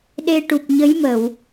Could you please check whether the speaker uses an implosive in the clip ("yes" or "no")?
yes